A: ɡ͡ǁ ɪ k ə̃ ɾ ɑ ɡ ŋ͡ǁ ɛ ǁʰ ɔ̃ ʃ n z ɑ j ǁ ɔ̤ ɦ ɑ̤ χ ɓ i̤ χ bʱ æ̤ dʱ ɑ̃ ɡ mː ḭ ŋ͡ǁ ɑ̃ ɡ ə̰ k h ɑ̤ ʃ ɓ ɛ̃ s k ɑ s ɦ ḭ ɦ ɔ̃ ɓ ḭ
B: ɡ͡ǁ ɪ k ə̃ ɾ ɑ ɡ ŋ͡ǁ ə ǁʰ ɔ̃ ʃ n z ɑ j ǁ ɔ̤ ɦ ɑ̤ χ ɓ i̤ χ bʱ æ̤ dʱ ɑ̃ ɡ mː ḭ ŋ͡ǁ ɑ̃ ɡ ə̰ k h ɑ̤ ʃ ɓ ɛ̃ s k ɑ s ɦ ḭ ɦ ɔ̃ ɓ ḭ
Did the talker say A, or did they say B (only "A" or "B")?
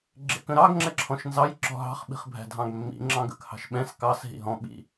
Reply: A